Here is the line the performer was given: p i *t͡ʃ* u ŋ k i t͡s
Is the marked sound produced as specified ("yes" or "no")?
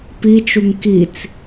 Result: yes